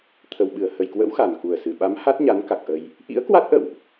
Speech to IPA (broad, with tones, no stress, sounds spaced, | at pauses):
t̪ʰ ə˨˩ w ɓ ɨ˧˩ ə̯ h ə˨˩ j k w ə̰˧˥ w x a˨˩ n k u˨˩ ə̯ s ɨ˨˩ ɓ a˨˦ m h a˦˥ t̚ ɲ a˨˦ n k a˨˩ k̚ ʔ ə˧ j | ʔ ḭ˧˥ ə̯ k w a˦˥ t̚ ʔ ə̰˧˨ w ʔ